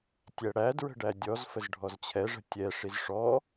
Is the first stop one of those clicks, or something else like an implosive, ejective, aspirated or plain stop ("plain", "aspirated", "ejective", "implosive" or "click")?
plain